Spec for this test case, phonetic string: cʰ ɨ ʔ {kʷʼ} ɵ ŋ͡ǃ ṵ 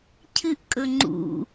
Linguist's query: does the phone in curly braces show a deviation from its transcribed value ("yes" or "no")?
yes